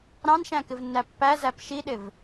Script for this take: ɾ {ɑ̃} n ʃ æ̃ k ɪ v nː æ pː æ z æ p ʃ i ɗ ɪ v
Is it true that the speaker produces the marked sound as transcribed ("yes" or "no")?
yes